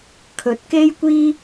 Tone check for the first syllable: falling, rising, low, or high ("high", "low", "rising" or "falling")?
rising